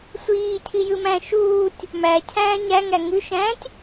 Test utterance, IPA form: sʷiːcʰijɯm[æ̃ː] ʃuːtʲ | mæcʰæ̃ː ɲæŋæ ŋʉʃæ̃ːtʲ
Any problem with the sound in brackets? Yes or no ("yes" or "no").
yes